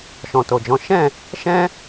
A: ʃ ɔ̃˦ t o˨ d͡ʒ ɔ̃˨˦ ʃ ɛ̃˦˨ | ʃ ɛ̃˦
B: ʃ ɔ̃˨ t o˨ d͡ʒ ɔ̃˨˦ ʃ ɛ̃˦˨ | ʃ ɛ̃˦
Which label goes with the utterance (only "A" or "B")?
B